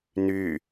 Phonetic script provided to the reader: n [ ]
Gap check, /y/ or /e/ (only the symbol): y